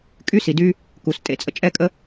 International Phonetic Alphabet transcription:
kʼ y˦ s i˨ d y˦ | k u˨ s tʼ ḛ˦ t͡sʼ ə̰˦ t͡ʃʼ ɛ˦ kʼ ə˦

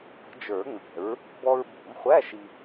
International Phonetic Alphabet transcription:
p ə̤˨˩˦ d͡ʒ ə˞˨˩˦ ŋ͡m ɛ̤˨˩˦ ɹ | b ɔ˧ ɹ b ṳ˨˩˦ m χʷ æ˧˥˧ ʃ i˧

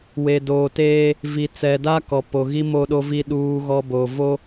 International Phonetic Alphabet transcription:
w e˨ d oː˨ t eː˦ | v i˨ t͡s ɛ˨ d a˦ k ɔ˨ p o˨ ɣ i˦ m o˦ ɗ o˦ v i˦ ɗ uː˦ ɣ ɔ˦ b o˨ v o˦

